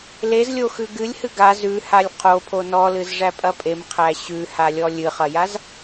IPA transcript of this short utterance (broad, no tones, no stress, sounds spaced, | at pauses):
l e z lʲ o x ʉ ɡ ɨ lʲ h ɨ ɡ a z ʉ h a lʲ qʰ o pʰ o n ɔ l ɨ z ʐ æ pʼ ɐ pʼ e m qʰ æ ɕ ʉ h a lʲ ɔ lʲ ɨ χ ɐ j a z